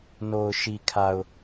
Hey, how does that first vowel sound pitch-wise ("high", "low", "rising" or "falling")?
low